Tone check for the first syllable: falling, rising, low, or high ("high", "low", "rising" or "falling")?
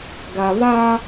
low